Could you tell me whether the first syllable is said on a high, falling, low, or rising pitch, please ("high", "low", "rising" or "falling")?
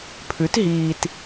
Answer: rising